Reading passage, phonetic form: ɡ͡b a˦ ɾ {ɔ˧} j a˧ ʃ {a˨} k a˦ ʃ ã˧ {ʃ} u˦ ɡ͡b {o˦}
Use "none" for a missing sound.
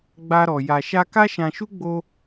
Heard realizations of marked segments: ɔ˧, a˦, ʃ, o˦

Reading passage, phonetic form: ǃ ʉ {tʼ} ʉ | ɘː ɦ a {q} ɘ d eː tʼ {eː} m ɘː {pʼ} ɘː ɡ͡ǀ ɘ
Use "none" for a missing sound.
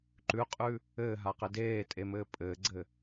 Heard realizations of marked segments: qʼ, q, e, pʼ

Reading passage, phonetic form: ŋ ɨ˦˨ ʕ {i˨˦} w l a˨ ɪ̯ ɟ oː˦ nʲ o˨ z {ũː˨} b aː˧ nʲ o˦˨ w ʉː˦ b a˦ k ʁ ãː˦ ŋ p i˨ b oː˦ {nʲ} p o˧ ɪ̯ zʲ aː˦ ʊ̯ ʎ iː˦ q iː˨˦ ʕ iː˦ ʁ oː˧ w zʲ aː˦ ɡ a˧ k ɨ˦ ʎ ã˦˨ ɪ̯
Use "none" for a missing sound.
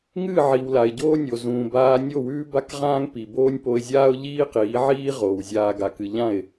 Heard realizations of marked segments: i˨, ũː˨, nʲ

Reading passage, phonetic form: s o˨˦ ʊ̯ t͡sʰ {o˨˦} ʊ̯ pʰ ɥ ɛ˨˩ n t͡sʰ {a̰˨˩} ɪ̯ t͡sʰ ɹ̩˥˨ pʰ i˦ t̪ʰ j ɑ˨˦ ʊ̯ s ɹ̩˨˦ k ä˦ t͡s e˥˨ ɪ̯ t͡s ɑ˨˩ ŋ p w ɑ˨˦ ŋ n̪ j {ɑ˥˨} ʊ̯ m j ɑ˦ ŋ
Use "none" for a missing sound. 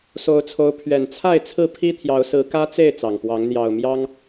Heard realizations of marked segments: o˨˦, a˥˨, ɑ˨˩

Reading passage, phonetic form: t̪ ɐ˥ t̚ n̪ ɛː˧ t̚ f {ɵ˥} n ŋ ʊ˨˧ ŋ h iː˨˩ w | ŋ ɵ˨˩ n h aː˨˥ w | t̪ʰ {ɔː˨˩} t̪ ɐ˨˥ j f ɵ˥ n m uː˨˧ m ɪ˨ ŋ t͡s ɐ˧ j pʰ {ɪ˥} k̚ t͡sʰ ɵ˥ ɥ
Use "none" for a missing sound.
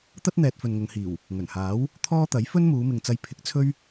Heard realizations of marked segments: ɵ˨, ɔː˥, ɪ˨˥

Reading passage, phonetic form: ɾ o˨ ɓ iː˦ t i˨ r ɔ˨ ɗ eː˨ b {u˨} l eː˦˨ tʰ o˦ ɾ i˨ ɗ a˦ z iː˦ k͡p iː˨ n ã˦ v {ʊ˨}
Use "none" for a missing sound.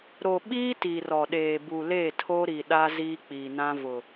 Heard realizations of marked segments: u˨, ʊ˨

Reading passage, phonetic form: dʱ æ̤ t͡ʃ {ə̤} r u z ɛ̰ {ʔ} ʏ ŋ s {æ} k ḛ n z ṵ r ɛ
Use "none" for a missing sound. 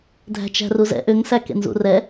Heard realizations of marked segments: æ̤, ʔ, æ

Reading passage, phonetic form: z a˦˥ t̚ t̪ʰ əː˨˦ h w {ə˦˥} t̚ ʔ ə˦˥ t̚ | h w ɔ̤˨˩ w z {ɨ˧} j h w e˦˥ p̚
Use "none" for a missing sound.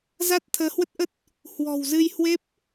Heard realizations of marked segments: ə˦˥, ɨ˧

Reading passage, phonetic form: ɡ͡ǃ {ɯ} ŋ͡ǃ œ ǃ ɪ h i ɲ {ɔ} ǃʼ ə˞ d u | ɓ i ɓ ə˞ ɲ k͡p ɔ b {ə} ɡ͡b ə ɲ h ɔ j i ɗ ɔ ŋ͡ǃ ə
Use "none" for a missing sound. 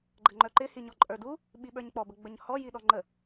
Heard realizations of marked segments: ə, ɔ, ə

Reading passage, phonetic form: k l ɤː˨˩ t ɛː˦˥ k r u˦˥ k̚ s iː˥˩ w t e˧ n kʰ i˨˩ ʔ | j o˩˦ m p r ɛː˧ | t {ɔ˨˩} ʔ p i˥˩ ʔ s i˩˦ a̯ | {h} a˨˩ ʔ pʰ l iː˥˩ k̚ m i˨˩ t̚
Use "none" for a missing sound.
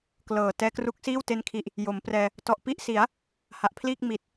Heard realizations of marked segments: ɔ˨˩, h

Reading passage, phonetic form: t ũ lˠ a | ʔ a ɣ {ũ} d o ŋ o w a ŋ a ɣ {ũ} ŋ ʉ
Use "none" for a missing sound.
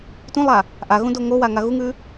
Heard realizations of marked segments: ũ, u

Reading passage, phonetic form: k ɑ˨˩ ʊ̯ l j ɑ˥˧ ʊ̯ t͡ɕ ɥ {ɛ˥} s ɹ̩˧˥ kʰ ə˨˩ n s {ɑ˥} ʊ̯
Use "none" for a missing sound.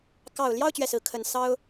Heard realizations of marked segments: ɛ˥˩, ɑ˥

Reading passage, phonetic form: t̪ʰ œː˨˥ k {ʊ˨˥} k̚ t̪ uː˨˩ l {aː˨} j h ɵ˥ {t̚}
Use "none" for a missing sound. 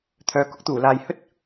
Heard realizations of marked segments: ʊ˥, aː˨, t̚

